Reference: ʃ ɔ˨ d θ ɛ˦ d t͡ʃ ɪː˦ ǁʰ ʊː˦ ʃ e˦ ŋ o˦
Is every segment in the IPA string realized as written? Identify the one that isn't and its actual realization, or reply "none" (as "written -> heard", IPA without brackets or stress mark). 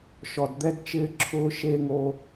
θ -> d̪